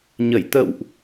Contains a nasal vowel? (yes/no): no